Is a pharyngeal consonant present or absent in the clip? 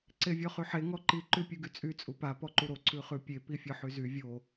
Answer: present